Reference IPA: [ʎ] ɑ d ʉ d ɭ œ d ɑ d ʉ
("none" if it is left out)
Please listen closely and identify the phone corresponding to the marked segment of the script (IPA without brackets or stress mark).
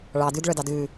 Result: ɭ